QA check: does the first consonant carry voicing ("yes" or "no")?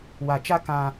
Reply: yes